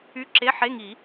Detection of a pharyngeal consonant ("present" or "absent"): present